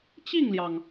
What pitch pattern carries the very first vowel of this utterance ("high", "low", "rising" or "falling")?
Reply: falling